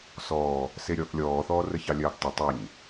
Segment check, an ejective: absent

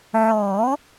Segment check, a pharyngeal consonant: present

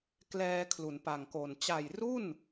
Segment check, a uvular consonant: absent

